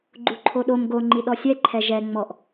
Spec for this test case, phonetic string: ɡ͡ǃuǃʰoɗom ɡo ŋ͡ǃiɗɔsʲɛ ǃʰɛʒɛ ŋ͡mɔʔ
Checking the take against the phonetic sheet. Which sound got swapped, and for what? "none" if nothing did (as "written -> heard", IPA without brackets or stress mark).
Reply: none